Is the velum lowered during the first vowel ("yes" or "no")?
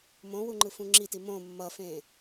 yes